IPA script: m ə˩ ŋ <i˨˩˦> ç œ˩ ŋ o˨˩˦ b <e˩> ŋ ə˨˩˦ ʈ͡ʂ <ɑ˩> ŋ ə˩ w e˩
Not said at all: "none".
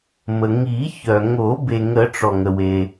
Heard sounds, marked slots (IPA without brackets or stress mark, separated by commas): i˨˩˦, e˩, ɔ˩